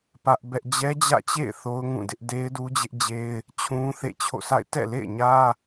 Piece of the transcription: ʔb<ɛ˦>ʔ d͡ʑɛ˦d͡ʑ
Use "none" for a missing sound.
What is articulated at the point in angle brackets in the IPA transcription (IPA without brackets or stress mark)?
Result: ɛ˦